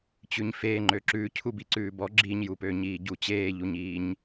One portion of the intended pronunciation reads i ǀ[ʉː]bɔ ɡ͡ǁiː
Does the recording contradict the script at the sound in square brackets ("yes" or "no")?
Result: no